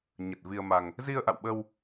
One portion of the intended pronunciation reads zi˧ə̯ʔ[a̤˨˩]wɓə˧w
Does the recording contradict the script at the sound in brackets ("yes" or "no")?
yes